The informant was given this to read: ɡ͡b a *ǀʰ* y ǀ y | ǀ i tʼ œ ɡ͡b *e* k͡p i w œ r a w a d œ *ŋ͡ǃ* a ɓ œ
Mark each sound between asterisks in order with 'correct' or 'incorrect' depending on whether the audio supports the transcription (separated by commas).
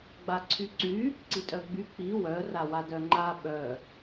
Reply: correct, incorrect, correct